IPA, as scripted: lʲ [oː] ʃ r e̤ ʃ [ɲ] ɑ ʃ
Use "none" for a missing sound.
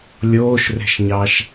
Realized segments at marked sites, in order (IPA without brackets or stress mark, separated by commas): oː, ɲ